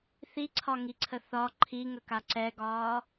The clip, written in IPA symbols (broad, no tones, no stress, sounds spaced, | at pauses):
θ i ǀʰ ɒ ŋ i ǀʰ ə θ ɒ ǃʰ i ŋ ə k a ǀ ɛ ɡ ɒː